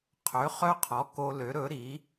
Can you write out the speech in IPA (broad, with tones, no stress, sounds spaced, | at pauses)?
qʰ ø˨˥ χ œ˦ qʰ ɔ˨˥ k o˦ l ø˨˥ ɾ ɵ˨˥ ɾ i˨˥